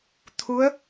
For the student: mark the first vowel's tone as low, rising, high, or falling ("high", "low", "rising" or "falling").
rising